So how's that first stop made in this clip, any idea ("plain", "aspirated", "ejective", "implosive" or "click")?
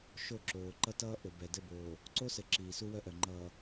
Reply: click